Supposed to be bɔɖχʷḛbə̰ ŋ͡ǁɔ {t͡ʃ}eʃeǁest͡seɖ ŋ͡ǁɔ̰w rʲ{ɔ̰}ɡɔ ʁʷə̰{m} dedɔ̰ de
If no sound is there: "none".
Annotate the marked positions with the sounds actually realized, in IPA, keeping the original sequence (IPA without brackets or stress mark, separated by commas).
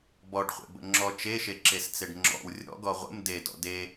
t͡ʃ, ɔ̰, m